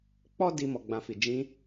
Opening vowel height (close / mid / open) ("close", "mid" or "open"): mid